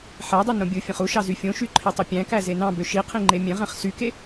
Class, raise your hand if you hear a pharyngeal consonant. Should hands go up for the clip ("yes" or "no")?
yes